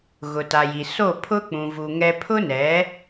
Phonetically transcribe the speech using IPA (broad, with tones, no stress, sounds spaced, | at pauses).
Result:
ɣ ʊ˨ t a˨ j i˨ s o˦˨ pʰ ʊ˦ k͡p ũ˨ v u˨ ŋ ɛ˦ pʰ ʊ˦ n ɛ˨˦